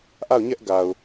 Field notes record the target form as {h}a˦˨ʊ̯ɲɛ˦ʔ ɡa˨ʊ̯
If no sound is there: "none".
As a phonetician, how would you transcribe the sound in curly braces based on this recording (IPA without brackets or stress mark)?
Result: ʔ